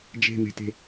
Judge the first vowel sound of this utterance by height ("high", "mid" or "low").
mid